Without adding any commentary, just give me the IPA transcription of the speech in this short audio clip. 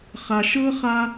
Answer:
χa˧ʃɤ˥χa˥

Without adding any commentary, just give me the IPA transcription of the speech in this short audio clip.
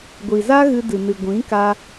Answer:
ɡʷi˨za˦ ɣɨ˧dɨ˨nɨ˨ ɡʷĩ˨˦ka˧

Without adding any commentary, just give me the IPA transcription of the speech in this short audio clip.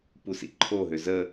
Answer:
pusḭǃʰoɦø zə

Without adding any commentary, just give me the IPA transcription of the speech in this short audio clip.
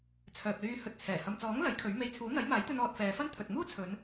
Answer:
t͡sʰœː˨p̚lyː˧hɵ˧t̚t͡sʰɛː˨˩ hɐ˨mt͡sɔː˨˥ŋ lɐ˨˥jkʰɵ˨˥ɥme˧j t͡sʰuː˨˥n̪ɐ˨˥jmaː˨˥jt̪ɵ˧n ɔː˧t̚fɛː˨˧fɐ˥n t̪ʰɵ˨t̚muː˥t͡sʰɵ˨˧n

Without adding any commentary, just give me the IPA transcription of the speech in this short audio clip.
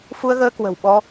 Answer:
fu˧ə̯ɣəː˧ kwə̤˨˩wɓɔ˧

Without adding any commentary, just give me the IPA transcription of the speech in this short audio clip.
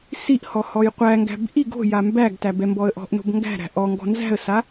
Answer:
siʔhɔ hɔjqʷæŋɡæ̤b ʔi ɡo̤ jambæɡtæ bɛmbɔə̯ʔɔ̤ʔno̤b ŋɡæ̤ɾæ̤ ʔɔŋɡɔ̤ nzæ̤ə̯sa

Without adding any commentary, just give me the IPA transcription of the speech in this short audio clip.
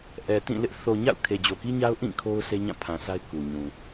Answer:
ʔɛ˨tĩ˦˨lɪ˦ʔ θo˨ɲa̰˦˨ʊ̯ kʰe˨d͡ʑo˨ki˦ɲa˦ʊ̯ ʔĩ˦˨ kʰo˦ʊ̯se˦ɲã˦˨ pʰã˨sa˦ɪ̯ ku˨ɲũ˨

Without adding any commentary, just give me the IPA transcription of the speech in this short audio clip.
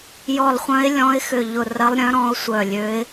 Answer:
jɔ˧˩lˠχʷœ̃˧˥ɪ̯lʲɔ̃˧˥ɪ̯xʏ˧˩ ʎʊ˧˩rɐ˧˥lˠɾʲœ̃˧˥ ɾɔ̃˧˥ʊ̯sʷœ˧˩lʲø˧˥ɪ̯

